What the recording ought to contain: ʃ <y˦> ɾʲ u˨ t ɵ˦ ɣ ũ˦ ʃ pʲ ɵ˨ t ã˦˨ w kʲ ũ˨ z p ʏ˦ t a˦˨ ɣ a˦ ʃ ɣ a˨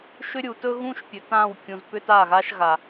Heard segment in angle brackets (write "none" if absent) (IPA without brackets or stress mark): ʏ˦